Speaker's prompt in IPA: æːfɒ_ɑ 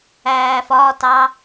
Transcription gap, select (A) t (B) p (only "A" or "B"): A